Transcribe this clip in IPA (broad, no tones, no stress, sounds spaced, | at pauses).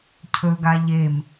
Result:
cʰ ɵ ɡ a ʎ e m